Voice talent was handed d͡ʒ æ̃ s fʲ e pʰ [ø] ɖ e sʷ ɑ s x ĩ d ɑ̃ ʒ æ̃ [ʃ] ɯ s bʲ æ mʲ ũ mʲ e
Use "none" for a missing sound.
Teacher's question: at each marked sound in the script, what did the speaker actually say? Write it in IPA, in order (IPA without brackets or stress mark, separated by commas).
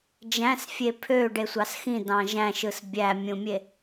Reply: ø, ʃ